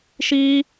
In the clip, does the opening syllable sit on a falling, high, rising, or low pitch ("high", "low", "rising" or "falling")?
high